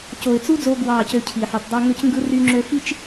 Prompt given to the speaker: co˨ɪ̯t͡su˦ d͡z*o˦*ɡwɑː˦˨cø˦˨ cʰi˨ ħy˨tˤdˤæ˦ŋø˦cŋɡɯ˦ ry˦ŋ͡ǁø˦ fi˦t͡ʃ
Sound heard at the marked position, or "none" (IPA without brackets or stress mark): o˦